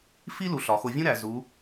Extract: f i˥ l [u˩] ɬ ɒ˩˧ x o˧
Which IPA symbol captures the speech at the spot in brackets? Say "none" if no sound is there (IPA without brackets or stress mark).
u˩˧